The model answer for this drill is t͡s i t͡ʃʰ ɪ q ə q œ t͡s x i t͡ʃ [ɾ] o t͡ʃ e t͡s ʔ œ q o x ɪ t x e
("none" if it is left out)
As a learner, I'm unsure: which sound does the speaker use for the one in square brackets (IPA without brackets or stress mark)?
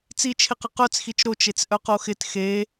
ɾ